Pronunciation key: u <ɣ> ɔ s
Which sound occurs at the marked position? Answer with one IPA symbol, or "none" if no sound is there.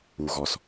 ɣ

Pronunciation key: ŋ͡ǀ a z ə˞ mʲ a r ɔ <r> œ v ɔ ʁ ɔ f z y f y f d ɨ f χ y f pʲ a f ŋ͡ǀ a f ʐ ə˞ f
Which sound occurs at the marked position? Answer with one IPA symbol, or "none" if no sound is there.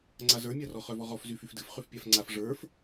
χ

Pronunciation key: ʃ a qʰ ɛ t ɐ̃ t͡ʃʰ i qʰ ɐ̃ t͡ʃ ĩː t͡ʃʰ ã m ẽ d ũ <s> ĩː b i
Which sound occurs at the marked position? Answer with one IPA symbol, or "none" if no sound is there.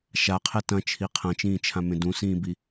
s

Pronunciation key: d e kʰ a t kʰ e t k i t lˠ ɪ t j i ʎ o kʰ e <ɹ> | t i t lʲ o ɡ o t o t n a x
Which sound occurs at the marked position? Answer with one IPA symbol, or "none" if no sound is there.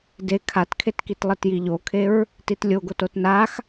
ɹ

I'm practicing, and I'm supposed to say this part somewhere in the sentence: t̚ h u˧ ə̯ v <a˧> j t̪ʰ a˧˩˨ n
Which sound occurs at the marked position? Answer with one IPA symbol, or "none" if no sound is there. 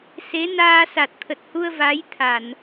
a˨˦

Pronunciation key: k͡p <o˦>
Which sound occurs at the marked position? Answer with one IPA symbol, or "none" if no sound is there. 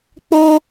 o˦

